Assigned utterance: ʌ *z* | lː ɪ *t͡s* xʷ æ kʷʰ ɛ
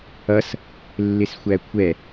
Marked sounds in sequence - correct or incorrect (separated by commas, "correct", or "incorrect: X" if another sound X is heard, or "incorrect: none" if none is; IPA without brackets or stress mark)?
incorrect: s, incorrect: s